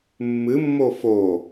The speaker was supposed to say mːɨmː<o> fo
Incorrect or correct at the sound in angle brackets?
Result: correct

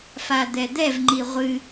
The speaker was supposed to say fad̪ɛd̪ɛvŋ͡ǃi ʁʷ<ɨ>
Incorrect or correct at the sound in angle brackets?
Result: correct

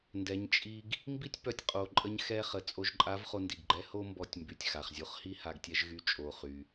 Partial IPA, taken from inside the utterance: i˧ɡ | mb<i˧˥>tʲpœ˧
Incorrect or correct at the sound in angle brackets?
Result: incorrect: i˥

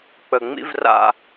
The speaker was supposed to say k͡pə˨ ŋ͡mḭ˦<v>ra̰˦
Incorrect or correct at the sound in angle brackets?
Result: correct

